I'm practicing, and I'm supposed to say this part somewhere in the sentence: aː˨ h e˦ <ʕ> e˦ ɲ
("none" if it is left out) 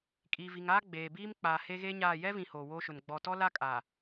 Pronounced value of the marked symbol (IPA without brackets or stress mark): ɣ